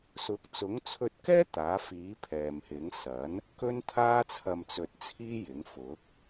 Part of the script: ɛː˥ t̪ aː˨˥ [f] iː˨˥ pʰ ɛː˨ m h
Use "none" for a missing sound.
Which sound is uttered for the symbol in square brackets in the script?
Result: f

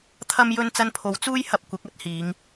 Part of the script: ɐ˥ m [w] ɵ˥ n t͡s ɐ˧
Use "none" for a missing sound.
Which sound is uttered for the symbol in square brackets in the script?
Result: j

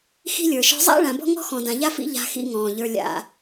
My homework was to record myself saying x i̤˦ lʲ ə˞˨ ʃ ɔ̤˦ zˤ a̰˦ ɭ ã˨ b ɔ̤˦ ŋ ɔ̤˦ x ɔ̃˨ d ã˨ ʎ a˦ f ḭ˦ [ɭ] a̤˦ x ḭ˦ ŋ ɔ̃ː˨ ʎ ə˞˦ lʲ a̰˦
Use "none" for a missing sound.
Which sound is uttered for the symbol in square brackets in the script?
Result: ʎ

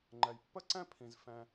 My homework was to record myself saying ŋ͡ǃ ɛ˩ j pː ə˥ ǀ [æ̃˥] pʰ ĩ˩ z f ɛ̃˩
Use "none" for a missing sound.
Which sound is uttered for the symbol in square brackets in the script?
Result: ɛ̃˥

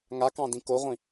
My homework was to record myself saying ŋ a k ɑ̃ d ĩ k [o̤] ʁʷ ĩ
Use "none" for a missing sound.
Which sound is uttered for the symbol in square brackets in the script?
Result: o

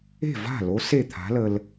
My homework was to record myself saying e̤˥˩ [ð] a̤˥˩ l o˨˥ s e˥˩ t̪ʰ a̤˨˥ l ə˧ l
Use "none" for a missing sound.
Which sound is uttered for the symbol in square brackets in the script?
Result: v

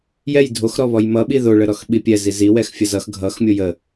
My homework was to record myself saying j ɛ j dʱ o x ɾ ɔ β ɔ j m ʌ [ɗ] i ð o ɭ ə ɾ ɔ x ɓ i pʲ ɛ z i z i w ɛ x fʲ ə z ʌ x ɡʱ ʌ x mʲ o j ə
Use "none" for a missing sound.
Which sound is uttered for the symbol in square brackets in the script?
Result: ɓ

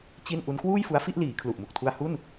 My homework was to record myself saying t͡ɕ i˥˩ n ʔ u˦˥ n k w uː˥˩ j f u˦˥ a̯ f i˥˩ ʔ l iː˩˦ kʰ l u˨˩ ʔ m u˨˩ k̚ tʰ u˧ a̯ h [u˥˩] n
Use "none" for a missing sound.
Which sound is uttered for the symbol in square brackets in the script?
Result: u˥˩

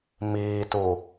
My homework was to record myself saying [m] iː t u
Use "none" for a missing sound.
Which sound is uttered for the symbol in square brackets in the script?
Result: m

